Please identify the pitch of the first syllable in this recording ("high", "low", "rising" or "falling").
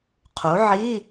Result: rising